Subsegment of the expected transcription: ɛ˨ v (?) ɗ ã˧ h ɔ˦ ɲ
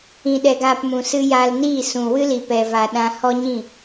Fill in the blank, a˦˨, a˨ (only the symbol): a˨